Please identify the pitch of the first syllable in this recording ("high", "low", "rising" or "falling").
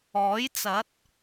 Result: rising